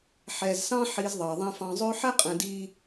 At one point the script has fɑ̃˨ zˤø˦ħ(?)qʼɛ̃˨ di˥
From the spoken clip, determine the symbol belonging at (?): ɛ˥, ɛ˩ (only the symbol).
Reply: ɛ˥